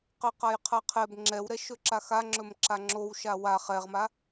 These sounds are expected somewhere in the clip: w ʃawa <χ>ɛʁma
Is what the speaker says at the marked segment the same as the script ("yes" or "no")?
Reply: yes